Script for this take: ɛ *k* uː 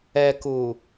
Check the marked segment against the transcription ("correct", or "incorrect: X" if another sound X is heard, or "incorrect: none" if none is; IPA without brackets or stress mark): correct